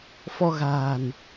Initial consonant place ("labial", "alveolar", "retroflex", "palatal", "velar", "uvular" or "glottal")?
labial